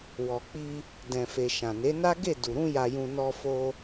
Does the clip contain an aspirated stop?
no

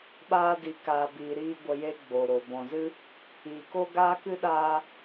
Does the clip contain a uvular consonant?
no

